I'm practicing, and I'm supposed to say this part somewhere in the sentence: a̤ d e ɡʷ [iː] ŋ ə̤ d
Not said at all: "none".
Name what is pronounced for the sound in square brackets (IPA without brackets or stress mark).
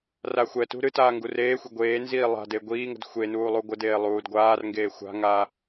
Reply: iː